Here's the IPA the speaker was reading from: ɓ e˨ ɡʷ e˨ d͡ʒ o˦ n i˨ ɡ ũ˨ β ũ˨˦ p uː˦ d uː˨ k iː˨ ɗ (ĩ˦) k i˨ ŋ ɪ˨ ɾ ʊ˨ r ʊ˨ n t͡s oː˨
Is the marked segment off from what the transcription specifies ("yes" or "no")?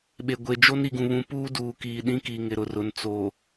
no